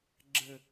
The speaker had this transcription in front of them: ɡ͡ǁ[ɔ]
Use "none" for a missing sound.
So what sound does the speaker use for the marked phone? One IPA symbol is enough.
ə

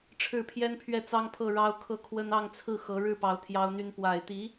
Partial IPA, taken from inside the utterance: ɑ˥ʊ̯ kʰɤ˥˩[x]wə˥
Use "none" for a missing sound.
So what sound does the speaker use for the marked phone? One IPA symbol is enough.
kʰ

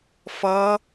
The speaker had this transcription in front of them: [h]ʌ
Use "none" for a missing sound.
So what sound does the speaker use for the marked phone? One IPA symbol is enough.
f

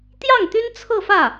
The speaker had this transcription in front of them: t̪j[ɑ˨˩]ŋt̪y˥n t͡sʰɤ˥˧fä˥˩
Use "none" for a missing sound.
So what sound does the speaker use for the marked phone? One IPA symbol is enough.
ɑ˥˩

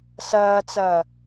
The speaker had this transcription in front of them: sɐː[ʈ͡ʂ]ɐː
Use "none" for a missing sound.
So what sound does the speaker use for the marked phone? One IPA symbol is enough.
t͡s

